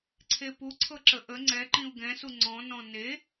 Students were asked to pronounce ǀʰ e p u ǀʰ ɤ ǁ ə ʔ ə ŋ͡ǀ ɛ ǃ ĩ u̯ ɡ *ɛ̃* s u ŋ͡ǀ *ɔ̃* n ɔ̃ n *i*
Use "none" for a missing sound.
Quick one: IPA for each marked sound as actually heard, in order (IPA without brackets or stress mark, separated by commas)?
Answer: ɛ̃, ɔ̃, e